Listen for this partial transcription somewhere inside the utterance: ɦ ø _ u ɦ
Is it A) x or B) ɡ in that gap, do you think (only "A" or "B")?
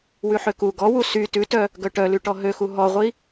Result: A